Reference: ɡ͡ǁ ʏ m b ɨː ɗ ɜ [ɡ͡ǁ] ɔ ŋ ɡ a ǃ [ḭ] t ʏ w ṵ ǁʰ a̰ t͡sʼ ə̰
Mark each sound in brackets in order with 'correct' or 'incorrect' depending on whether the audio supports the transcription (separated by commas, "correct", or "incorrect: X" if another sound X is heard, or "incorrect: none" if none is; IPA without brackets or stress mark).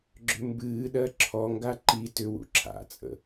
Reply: incorrect: ǁʰ, incorrect: i